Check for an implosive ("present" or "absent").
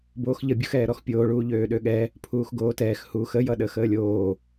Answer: present